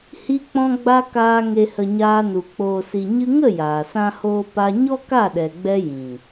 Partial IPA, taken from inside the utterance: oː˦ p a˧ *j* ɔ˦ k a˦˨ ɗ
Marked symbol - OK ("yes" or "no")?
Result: no